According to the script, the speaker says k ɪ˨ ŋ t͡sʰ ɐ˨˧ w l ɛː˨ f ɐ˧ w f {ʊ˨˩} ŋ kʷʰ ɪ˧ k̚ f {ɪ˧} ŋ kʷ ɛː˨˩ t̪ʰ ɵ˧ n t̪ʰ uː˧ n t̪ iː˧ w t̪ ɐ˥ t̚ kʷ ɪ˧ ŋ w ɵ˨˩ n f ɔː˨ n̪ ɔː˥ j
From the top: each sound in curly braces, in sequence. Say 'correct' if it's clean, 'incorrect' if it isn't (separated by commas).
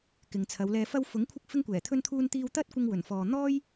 incorrect, correct